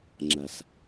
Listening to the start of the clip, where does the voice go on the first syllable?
low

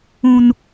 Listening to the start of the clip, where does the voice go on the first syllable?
low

